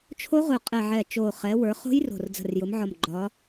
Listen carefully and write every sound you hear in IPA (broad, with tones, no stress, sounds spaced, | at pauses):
t͡ʃʰ o˦˥ ʁ ʊ˨˩ qʼ ɛ˨˩ ʕ ɛ˨˩ t͡ʃ o˨˩ χ ɛ˩˧ w ə˞˩˧ χ o̤˦˥ j r o̤˨˩ r d͡z ə̤˨˩ r j ʊ˩˧ m ʕ ɒ˨˩ m ɡ͡ǃ ɒ˩˧